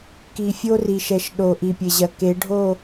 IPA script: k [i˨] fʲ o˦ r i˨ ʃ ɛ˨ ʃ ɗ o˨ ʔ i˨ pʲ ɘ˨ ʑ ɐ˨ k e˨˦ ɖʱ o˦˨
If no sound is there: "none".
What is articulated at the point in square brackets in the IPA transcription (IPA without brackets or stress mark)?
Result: i˨